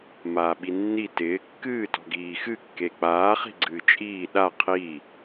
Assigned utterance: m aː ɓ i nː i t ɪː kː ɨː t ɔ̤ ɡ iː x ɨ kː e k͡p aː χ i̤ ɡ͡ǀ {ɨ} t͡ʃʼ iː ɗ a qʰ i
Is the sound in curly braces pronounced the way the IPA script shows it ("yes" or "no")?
no